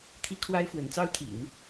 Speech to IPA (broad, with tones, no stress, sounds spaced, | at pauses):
t̪ʰ i˥ kʰ w a˥ ɪ̯ f w ə˧˥ n t͡s ɑ˥ ʊ̯ t̪ʰ ḭ˨˩˦ n